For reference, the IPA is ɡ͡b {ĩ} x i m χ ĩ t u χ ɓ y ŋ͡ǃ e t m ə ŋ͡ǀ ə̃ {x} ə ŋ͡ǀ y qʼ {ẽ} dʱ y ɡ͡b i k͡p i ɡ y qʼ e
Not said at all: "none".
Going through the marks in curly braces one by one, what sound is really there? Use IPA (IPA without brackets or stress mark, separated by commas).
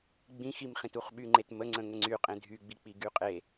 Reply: ĩ, ŋ, ẽ